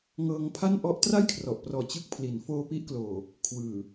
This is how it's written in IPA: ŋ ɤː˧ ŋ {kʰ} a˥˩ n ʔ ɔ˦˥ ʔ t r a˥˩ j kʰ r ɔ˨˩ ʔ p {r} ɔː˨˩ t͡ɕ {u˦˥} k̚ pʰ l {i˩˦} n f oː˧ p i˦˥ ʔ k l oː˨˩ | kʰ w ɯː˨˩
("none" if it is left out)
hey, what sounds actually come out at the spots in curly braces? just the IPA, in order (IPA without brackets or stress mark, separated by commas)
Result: pʰ, r, ɯ˦˥, i˩˦